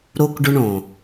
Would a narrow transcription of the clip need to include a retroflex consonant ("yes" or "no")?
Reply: yes